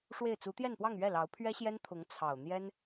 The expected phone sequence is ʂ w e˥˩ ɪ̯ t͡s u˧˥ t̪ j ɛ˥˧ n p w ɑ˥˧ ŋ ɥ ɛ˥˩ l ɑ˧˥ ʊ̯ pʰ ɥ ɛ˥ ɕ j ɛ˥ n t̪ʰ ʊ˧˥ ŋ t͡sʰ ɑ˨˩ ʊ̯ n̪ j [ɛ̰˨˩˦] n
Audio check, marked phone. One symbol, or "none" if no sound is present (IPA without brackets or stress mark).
ɛ˥